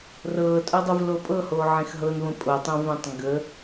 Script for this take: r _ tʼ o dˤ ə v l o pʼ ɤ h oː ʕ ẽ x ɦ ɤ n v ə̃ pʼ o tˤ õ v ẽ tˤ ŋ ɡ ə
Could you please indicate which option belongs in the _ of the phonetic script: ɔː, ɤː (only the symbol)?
ɤː